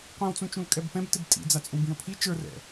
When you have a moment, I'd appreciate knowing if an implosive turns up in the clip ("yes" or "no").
no